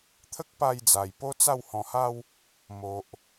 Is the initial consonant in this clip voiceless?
yes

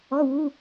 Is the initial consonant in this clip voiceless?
no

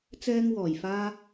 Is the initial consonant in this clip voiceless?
yes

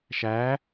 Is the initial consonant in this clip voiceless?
yes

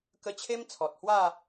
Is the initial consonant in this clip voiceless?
yes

